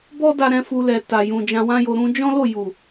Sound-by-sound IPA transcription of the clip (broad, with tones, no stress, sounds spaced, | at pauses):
b ɔ˦ d a˧ ɾ ɛ̃˧ f u˧ l ɛ˨ t a˨ j ũ˨ d͡ʒ ã˧ w ã˦ j o˧ ɾ ũ˧ d͡ʒ ɔ̃˦ l o˦˨ j u˨